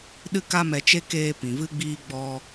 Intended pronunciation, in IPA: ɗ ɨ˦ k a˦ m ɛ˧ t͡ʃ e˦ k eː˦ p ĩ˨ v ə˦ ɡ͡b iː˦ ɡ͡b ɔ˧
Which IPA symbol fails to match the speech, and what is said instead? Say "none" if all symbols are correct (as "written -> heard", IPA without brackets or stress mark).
ə˦ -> ɨ˦